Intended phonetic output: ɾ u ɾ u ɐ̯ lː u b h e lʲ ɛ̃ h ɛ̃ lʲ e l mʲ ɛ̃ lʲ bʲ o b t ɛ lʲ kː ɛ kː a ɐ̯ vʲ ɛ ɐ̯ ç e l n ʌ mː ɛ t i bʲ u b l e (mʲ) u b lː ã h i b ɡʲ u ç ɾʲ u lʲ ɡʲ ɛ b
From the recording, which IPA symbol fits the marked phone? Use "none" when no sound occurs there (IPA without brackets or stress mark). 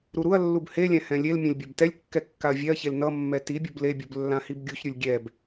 bʲ